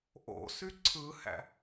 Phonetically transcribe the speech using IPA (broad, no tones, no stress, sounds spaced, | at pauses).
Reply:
ʔ o̰ s y ǀʰ ɯ h æ̰